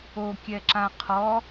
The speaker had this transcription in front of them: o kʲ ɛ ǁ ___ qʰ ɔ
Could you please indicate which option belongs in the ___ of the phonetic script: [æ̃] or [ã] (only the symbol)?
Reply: ã